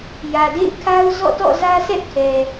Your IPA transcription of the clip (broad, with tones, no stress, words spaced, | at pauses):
jä˨dḛ˦˨ɪ̯kʰa˦ʊ̯ zɔ̰˦˨tɔ̰˦˨zä˦sʰɛ˦ʔ kʰɛ˨